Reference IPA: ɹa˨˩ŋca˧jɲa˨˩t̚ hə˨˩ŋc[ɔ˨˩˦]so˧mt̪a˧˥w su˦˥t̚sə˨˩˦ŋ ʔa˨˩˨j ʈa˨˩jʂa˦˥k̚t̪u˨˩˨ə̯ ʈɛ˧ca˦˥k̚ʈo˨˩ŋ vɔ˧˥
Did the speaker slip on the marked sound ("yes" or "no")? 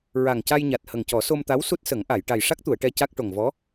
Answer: no